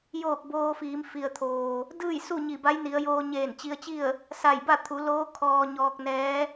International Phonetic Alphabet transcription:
j oː˧˩ k̚ b oː˧ f iː˩˧ m f i˩ ə̯ t̪ʰ oː˩ | d ɯː˥˨ j s u˥˨ ɲ i˧˩ b a˧˥ j n i˩˧ ə̯ j oː˧ ɲ eː˧˩ n t͡ɕ i˧ ə̯ t͡ɕ i˥˨ ə̯ | s a˧˩ j b a˥˨ t̪ʰ u˩˧ l oː˧˥ kʰ ɔː˧ ɲ ɔː˧ k̚ n ɛː˧˥

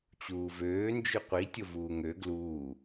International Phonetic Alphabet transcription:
t͡ɕ uː v øː n d͡ʒ ʉ qʷ i tʲ o v uː ŋ ø ɡ l uː

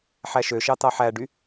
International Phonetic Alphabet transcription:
ħ æ ʃ ø ʃ ɑ t̪ ɑ ħ æ ɖ y

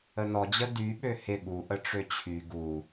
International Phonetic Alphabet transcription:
ə n ɔ d͡ʑ ə d y ɓ ø h ɪ ɠ u ʔ ə ʈ͡ʂ ø t͡ɕʰ y ɡ u

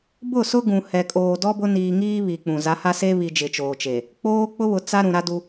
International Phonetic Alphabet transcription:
b ʊ˦˨ s ʊ˦ ɡ ũ˨ h ɛ˨ kʼ oː˨ d ɔ˦ b ʊ˦ n iː˨ ŋ iː˦ β i˨ k͡p ũ˨ z a˨˦ h a˦ s e˦ β i˨ d͡ʒ ɪ˨ t͡ʃ oː˨ t͡ʃ e˨ | k͡p oː˦ k͡p ʊ˦ β ʊ˨ t͡s a˦ ɾ ũ˨ ɾ a˦ d u˦

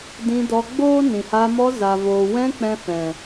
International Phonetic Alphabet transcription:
d ĩ˧ d ɔ˧ ɡ͡b oː˦ n ĩ˨ h a˧ m ɔ˧ z a˨ v oː˨ w ɛ̃˧ k͡p ɛ̃˧ f ɛ̃˨

